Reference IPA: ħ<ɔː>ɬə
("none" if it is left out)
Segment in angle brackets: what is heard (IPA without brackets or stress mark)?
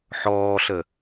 ɔː